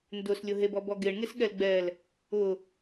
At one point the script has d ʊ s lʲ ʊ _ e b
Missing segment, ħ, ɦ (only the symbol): ɦ